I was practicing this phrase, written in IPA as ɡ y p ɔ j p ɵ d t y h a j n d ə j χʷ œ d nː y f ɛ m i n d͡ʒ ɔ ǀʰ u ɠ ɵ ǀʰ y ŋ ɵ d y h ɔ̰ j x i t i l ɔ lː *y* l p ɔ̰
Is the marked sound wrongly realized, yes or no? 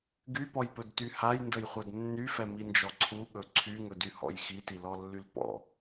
no